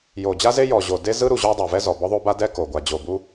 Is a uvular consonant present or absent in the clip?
absent